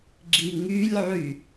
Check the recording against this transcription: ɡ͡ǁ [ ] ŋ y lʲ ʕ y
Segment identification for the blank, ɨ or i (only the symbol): i